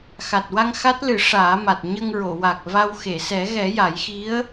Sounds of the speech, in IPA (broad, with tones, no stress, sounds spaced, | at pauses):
x a˨˩ t̚ w a˧ ŋ x a˦˥ t̚ l ɨ˨˩˦ ʂ aː˨˩˦ m a˨˩ t̚ ɲ ə˧ ŋ ɹ o˨˩˨ w a˨˩ k̚ v a˧ w x e˨˩˨ s ɛ˨˩˦ ɣ ɛ˨˩˦ j a˨˩˦ j x i˧˥ ə̯